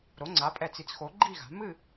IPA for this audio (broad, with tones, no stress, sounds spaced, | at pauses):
ɾ o˩˥ ŋ͡ǀ a˩˥ pʼ ɛ˧˩ t͡s i˩˥ t͡s x o˩˥ ɡ͡ǃ i˥˨ ɣ a̤˩˥ m ɨ˥˨